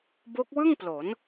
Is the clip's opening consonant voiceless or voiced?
voiced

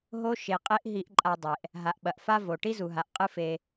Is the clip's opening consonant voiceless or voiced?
voiced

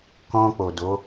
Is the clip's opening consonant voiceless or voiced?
voiceless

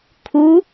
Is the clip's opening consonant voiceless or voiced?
voiceless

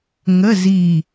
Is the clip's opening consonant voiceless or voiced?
voiced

